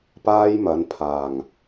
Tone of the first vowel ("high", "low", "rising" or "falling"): high